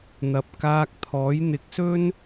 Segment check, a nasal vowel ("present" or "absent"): absent